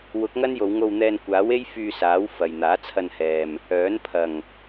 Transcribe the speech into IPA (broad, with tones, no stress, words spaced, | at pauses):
wʊ˨˥k̚ŋɐ˥n jo˨˧wŋo˧wn̪ɛː˧n kʷaː˨˥we˥j fyː˧saː˨˥w fɐ˨j n̪aː˨˥t͡sʰɐ˧nhɛː˨m | œː˨˥n pʰɐ˨˩ŋ